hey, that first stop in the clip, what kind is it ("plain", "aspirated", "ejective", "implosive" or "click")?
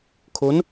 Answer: aspirated